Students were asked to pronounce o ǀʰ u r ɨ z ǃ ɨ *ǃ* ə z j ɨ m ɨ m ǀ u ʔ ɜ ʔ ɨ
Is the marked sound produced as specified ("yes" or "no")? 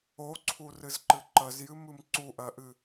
yes